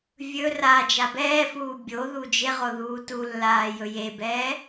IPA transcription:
vʲ ɵ r a d͡ʒ a b ɛː f uː bʲ o ð u d͡ʒ e ʁ o ð uː t u lː aː j ɵ j e b ɛː

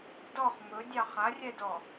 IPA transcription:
d ɔ χ m ɵ dʲ ɑ χ a rʲ ɛ d ɔ

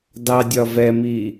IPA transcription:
d ɑ dʲ ɒ v ɛ m i

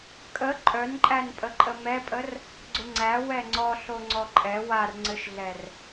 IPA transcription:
kʼ ə ǃʼ œ n ǃʼ æ n pʼ ə ǃʼ ə m ɛ pʼ ə r | ɡ͡ǀ ʊ ŋ͡ǀ æ w ɛ ŋ͡ǀ ɔ ɬ o ŋ͡ǀ ɔ ǃʼ ɛ w a r ŋ͡ǀ ɘ ʃ ɮ ɛ r

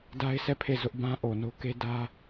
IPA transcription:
d a˦ ɪ̯ s ɛ˦˨ pʰ e˦˨ z ʊ˦ ʔ b ã˦ ʔ o˨ n o˦ k e˦ d ä˦

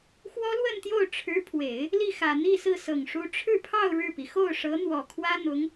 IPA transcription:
x w ɔ˥ l w ə˥˧ n t̪ j o˥˩ ʊ̯ ʈ͡ʂʰ ɻ̩˧˥ pʰ w e˨˩˦ ɪ̯ | l i˥˩ x ä˨˩ n̪ i˥˧ s ɹ̩˥˩ s ɤ˨˩ ŋ ʂ u˧˥ ʈ͡ʂʰ ɻ̩˥˧ pʰ ɑ˥˧ ʊ̯ ɻ ɻ̩˥˩ p i˩ x o˥˩ ʊ̯ ʂ ɤ˧˥ n̪ w ɔ˨˩ kʰ w ä˥ n̪ ʊ˧˥ ŋ

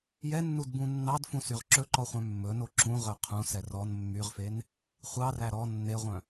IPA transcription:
j ɛ nː u d b ũ nː ɑ d f ũ s y ʁ ǁ ɵ ǃ ɔ χʷ œ̃ mː ɵ n o ǁ ũ ʁ œ qʰ ũ s ɛ r ɔ n mː y ʁ f e n | χʷ ɑ r æ ɾ ɔ nː e ʁʷ œ̃

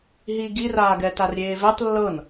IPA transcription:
ɦ i ɡ i r aː ɡ ɛ t a r ɾʲ eː v e tˤ lː ɤ n

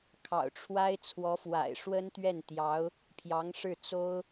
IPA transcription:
kʰ ɑ̰˨˩ ʊ̯ ʈ͡ʂʰ w a˥ ɪ̯ t͡sʰ w ɔ˧˥ f w a̰˨˩ ɪ̯ ʂ w ə˥ n t̪ ɥ ɛ˥˩ n t̪ j ɑ˧˥ ʊ̯ | pʰ j ɑ˧˥ ŋ ʂ ɻ̩˥˩ t͡s o˥ ʊ̯

